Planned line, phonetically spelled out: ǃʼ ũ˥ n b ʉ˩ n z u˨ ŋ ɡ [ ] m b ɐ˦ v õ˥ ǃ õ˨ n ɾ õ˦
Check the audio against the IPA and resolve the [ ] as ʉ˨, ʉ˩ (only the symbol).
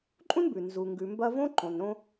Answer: ʉ˨